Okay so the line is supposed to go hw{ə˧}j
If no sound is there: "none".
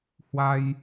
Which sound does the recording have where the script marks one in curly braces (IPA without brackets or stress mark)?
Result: a˧